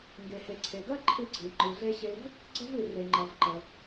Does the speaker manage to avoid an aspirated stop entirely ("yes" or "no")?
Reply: no